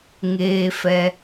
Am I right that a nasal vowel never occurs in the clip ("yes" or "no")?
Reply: yes